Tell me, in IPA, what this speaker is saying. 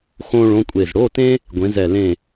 x õ˥ ɭ õ˧˥˧ kʷʼ e˧˩ z ɽ o˧˥˧ t ẽ˥ | ɡʷ ẽ˨˥ z ɛ˧˩ l ẽ˧˩

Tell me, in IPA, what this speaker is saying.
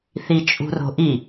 θ i t͡ʃʼ ṳ r o̤ ʔ i

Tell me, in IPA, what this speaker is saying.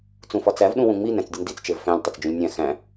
t͡s ũ f ɒ t͡s æ v ɗ ũ w ũ ŋ͡m i n æ̃ t͡s dʲ u n d i t͡s t͡ʃ e v f æ̃ lʲ tˤ e t͡s d͡ʒ ũ lʲ nʲ æ̃ x æ̃

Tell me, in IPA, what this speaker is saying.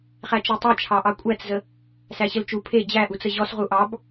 χ æ t͡ʃ e tˤ æ t͡ʃʰ ɑ ʔ ɑ kʷʼ æ t͡s z ə | s æ ɕ ə l t͡ʃ u pʰ e d͡ʑ æ ʔ u t͡s ə ʑ ɔ s ʁ u ʔ ɑ b

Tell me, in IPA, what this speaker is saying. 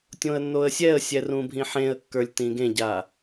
tʲ õ ə̯ nː o ə̯ sʲ ɛ ə̯ sʲ ɛ r ũ bʱ ĩ ħ ẽ ə̯ kː ə˞ lʲ t ĩ ɡ ẽ ɟ a

